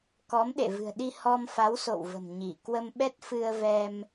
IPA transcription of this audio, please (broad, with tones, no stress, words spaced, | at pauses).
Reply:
kɔ˨˦mɗḛ˧˨ vɨ̤˨˩ə̯ɗi˧ hɔ˧mfa˨˦wso̰˧˨wvə̤˨˩m ɲi˧˩kwə˧mɓɛ˦˥t̚ fɨ˧ə̯vɛ˧m